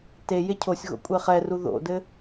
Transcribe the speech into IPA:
t e j e cʰ o sʲ ɣ o̰ kʷʼ e χ ɛ r u ð o̰ d ɘ

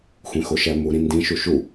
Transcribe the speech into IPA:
xʷ ẽ x o ʃ æ m u ɾ ĩ n d ĩ ʃ u ʃ u

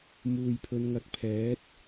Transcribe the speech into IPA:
m uː˨ j pʰ ɵ˨˧ n ŋ ɐ˨˥ k̚ pʰ ɛː˨˥ t̚

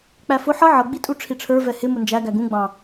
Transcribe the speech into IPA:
k͡p æ f ʊ ħ ʌ ʕ ʌ ɡ͡b i tʼ u ʈ͡ʂʰ i ʈ͡ʂʰ ə˞ v ɛ h ɪ m ʊ n d͡ʒ æ ɡ æ ɡ ũ ɡ͡b ɑ̃

